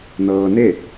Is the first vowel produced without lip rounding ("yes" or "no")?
yes